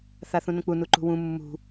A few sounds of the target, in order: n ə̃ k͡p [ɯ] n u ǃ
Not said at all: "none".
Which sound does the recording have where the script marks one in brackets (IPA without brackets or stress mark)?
u